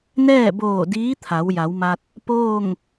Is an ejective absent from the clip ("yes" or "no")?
yes